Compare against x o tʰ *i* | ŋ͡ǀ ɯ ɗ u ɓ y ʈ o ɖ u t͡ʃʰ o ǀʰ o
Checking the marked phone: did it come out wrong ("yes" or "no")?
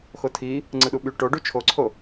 no